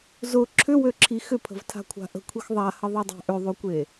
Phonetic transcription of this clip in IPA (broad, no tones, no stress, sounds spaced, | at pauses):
z ʊ ǁʰ ʏ w ø ǁʰ i x ʏ pʰ ə̤ v tʰ a̤ kʷʰ a̤ ʔ ə̤ kʷʰ i x ðˤ a h ə ðˤ ø dˤ a̤ ʔ ʏ ðˤ ø kʷ e